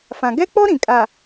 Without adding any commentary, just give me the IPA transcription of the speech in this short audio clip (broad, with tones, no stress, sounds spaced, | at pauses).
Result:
f ã˨ ɡ ɛ˦ k͡p ɔ˦ ɾ ĩ˨ kʼ a˨